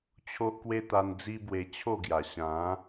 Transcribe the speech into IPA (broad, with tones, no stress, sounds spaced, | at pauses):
t͡ɕʰ o˦ ʔ k w e˦ t̪ a˧ n d͡z i˦ b w e˧ t͡ɕʰ o˥˧ ɡ j a˨˩ ɕ ã˨˦